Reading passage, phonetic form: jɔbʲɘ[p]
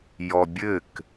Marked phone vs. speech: incorrect: k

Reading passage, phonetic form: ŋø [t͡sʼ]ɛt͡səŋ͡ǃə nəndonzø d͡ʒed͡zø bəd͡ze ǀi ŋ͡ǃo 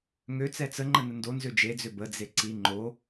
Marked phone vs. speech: incorrect: t͡s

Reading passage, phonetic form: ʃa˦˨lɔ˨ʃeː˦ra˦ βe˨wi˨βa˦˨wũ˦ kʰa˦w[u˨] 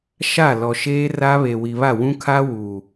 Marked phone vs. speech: correct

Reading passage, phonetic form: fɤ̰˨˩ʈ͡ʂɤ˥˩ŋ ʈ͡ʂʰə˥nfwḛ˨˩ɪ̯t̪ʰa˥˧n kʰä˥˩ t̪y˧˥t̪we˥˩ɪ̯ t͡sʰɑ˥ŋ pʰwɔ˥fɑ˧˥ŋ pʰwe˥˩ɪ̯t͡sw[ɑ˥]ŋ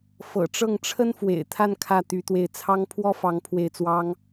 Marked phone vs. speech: correct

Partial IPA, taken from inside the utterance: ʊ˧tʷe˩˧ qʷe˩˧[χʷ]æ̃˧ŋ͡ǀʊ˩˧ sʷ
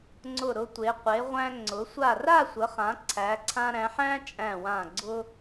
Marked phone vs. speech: incorrect: ʁʷ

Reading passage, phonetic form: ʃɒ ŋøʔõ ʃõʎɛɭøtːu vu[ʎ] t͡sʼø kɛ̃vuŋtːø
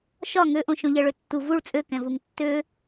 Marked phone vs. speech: incorrect: ɭ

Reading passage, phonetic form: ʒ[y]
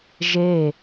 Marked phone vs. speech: incorrect: e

